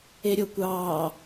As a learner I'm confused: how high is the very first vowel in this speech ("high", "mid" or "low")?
mid